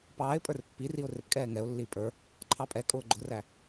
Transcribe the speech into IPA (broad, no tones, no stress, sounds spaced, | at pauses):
p ɑː ɪ̯ pʼ ə˞ r pː i r i ʊ̯ r ɪ p kʼ ɛː ŋ ɛ ʊ̯ lː iː pʼ ə˞ | ǃʰ ɑ pʼ ɛ kʼ ʊː ɡ͡ǃ ʊ r æ